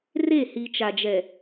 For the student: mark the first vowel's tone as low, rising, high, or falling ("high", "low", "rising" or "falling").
falling